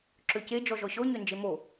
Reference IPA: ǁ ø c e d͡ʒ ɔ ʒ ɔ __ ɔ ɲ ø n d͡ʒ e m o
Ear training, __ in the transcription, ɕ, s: ɕ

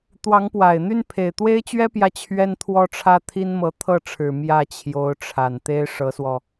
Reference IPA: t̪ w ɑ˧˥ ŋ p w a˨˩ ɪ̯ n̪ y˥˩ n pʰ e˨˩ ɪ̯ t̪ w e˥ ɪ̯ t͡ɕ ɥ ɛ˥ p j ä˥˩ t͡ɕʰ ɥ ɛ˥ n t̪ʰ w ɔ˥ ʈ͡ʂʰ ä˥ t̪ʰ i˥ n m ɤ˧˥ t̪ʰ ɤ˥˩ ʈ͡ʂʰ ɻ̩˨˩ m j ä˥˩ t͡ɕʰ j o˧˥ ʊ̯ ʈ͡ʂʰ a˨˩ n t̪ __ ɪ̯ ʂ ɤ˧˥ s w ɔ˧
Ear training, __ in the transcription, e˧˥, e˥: e˥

